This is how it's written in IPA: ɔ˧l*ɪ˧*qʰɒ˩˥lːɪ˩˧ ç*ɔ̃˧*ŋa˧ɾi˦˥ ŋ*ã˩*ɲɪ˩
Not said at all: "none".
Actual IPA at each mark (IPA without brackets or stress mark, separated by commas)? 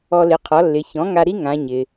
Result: ɪ˩˥, ɔ̃˩˥, ã˩˧